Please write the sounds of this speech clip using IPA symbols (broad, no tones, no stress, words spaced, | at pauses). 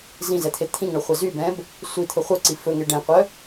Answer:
zĩzɛt̪ʰe t̪ʰĩŋɳɵχʷɛ zybɛ̃b | sʷit̪ʰɵ χʷœǀi fɵŋe ɖɛ̃qʷœ